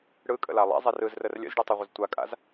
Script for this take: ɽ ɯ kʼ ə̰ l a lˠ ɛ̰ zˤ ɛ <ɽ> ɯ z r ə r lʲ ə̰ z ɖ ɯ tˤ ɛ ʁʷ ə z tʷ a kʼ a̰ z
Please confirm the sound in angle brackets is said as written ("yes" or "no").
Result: no